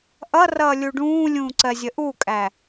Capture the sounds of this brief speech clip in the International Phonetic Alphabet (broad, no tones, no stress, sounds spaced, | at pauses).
ʔ ʌ r ʌː lʲ u ɖ ũː lʲ ũː ǀ ɜ zʲ ə ʔ u kʼ æ